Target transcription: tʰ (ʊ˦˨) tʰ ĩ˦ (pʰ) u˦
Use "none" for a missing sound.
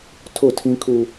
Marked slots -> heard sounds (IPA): ʊ˦˨, kʰ

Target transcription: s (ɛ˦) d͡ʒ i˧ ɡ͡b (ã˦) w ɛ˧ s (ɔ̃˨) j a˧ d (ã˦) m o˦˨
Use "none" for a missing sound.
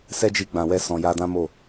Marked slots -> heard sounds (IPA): ɛ˦, ã˨, ɔ̃˨, ã˦

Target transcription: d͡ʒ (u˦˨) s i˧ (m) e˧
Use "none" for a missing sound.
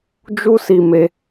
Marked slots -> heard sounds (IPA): u˦, m

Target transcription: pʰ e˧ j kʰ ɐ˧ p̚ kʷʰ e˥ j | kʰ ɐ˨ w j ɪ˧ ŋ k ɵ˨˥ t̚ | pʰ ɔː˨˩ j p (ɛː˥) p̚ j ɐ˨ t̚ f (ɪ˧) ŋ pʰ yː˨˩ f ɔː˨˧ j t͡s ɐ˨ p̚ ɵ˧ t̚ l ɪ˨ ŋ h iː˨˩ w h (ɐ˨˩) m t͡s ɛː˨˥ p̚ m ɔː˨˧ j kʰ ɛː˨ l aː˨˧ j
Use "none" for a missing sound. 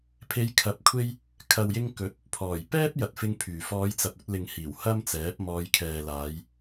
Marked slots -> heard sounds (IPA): ɛː˥, ɪ˧, ɐ˥

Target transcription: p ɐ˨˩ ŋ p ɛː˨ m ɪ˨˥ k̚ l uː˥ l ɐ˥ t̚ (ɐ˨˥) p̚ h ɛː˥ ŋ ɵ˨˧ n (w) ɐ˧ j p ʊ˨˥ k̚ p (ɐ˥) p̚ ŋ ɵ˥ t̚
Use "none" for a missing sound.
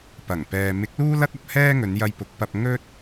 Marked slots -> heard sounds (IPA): ɐ˧, j, ɐ˧

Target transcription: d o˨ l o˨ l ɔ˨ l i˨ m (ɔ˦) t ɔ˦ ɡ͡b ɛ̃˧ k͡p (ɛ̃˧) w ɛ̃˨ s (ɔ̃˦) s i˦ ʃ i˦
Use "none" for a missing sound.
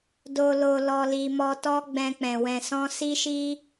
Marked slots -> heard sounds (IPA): ɔ˧, ɛ̃˨, ɔ̃˧

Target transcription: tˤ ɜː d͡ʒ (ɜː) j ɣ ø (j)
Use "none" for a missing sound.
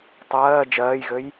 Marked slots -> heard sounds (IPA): ɜː, j

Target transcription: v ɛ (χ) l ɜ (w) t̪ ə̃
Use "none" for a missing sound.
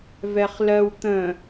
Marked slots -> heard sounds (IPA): χ, w

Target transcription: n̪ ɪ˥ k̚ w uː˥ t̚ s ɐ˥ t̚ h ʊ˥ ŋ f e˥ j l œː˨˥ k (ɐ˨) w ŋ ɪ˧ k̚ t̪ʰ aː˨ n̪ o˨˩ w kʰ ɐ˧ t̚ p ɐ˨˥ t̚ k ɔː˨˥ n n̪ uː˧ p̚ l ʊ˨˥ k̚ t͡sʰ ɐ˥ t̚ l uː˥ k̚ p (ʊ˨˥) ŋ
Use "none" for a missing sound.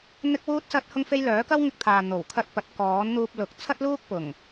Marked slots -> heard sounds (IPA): ɐ˥, ʊ˨˩

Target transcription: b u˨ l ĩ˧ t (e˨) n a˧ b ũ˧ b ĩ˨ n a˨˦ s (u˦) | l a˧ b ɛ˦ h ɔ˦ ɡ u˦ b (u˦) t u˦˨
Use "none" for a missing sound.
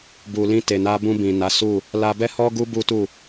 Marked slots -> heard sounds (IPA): e˨, u˦˨, u˦

